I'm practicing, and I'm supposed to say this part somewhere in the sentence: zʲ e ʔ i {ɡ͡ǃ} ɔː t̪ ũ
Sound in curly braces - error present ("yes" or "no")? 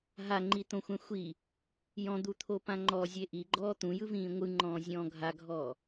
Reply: no